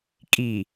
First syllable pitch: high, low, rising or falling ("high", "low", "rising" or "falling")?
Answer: low